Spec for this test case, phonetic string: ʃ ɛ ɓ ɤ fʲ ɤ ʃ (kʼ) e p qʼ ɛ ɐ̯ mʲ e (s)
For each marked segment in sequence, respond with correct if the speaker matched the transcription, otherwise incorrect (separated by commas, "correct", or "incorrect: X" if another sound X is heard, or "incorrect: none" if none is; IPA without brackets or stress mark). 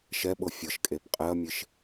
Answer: correct, incorrect: ʃ